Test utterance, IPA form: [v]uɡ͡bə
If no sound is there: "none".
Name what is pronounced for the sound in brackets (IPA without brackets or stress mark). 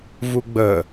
v